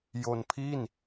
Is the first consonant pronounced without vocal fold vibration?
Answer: no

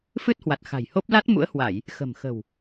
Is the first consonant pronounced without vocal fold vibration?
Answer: yes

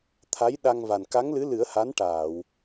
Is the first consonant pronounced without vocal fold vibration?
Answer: yes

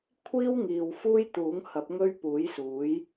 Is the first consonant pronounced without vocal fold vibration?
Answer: yes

